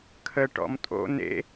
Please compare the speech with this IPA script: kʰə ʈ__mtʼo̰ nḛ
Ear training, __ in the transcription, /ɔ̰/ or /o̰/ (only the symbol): ɔ̰